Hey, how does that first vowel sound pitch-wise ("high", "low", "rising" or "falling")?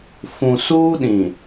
low